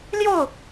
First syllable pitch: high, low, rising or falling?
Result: falling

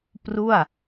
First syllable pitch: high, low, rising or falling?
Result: falling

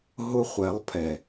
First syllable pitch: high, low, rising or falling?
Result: high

